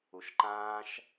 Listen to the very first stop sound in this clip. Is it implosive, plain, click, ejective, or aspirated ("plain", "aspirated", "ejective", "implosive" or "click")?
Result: click